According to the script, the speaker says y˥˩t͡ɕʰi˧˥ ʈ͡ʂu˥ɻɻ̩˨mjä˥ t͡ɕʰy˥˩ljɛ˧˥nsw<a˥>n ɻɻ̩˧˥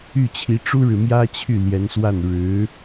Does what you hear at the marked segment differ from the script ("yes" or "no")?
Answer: yes